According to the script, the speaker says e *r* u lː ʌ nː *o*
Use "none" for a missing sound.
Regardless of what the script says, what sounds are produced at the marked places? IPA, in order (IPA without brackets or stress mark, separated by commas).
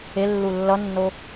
lː, o